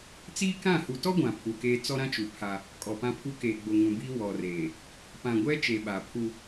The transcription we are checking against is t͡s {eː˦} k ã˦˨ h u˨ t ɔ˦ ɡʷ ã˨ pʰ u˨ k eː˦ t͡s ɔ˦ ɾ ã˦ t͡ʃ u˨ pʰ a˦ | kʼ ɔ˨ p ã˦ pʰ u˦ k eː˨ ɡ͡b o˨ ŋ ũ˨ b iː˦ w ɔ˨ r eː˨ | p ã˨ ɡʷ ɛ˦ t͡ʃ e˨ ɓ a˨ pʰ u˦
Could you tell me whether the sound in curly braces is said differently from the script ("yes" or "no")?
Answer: yes